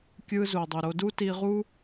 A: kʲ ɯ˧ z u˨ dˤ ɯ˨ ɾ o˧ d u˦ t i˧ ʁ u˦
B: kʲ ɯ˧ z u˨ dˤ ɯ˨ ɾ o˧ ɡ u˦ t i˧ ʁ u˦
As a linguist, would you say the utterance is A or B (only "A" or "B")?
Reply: A